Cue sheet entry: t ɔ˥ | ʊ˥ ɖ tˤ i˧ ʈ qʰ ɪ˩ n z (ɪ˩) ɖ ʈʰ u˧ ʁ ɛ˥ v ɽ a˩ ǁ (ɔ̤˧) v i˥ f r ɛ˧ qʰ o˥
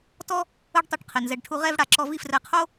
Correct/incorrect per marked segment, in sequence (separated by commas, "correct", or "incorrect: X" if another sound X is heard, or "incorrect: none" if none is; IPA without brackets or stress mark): incorrect: ɛ˩, incorrect: ɔ˧